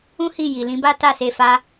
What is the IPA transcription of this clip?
ũ˦ h i˦˨ j i˨ l ĩ˨˦ b a˦ t a˦˨ s e˧ f a˧

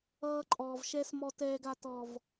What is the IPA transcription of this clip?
ʌː˦ ǃʼ ɔː˨ v ʃ ɛ˦ s m ɔ˨ t ɛː˨ ɡ a˨ t ɔ˨ v

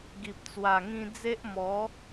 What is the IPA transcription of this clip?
ɡ i˨ p̚ t͡s w a˨˩ ŋ ĩ˧ d͡z e˦ ʔ m ɔ˨˦

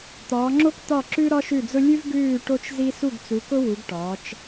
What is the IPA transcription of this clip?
t̪ ɒː˨˦ ŋ͡ǁ o˥ k t̪ ɒ˥˨ ǁ ʉ˥ ɾ ɒ˥ ʃ ʉ˥˨ d͡z ʊ˥ lʲ ʉ˥ v ɡ ʉː˥˨ ʈ o˥ t͡ʃ z i˥ s u˥˨ ɡ t͡s u˨˦ k ʊ˥ w u˨˦ ɡ ʈ ɒː˨˦ t͡ʃ

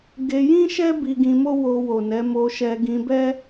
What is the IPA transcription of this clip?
ɡ e˧ j ĩ˦ ʃ ɛ˦ b i˧ ɡ ĩ˧ m o˦ w o˧ w o˨ n ɛ˨˦ m o˧ ʃ ɛ˧ ɡ ĩ˧ b ɛ˦

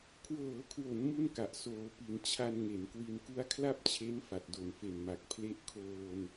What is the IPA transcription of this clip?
kʰ w ɤː˩˦ kʰ w o˩˦ n m u˥˩ n k a˨˩ ʔ s oː˩˦ p i˩˦ n t͡ɕʰ a˧ n ŋ e˩˦ n k w i˧ n k u˦˥ a̯ kʰ l a˥˩ p̚ t͡ɕʰ e˦˥ n f a˨˩ t̚ d o˨˩ n f e˨˩ n m a˨˩ k̚ pʰ l e˦˥ ʔ kʰ oː˧ n

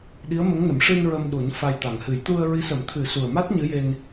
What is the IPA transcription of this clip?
ɗ i˧˥ ə̯ m ə˧˥ ŋ n ə˨˩˦ m ʂ ɨ˧ n ɹ ə˧ m ɗ u˨˩˦ n f a˧ j t̪ a˨˩ ŋ h ɨ˨˩˦ j t̪ u˧ ə̯ ɹ i˧˥ s ə˨˩˦ m t̪ʰ ɨ˨˩˦ s u˨˩ ə̯ m a˦˥ t̚ ɲ ɨ˧˥ j e˧ n

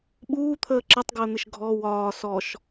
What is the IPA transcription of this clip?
ɓ uː t̪ʰ əː ǁ ə tˤ ɡ əː n̪ ɪ ʃ ɡʱ ɔ w ɒː s ɔ ʃ

